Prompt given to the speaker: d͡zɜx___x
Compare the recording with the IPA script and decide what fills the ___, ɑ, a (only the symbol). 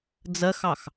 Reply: ɑ